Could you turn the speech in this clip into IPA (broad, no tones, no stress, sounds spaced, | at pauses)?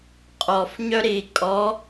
qʼ ɔ f ɲ œ ɾ i kʼ ɔ